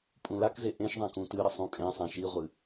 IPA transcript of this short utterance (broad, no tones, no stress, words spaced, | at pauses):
pʼũlakze ʔẽʃðˤã kũtɨɾɘ sˤũkʼẽsˤã ʃiʁʷɨ